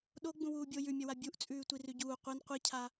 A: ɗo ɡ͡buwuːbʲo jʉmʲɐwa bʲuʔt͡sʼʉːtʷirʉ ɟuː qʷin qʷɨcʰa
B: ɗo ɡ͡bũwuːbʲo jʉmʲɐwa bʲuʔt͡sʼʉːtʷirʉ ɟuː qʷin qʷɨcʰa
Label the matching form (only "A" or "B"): B